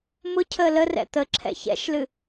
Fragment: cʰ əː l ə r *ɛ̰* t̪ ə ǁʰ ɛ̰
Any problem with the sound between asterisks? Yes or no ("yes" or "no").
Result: no